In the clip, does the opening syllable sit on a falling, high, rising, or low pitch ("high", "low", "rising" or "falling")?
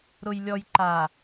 low